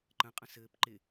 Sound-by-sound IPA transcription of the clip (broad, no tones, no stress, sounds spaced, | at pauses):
ǃ ə̃ qʼ ə̃ s ɘː p ǃ ɪ